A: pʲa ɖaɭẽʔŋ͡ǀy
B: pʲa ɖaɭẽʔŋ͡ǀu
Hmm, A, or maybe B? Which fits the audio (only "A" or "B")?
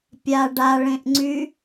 A